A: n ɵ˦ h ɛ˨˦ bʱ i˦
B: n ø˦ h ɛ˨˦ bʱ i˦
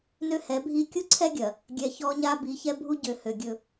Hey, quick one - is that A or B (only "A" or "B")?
B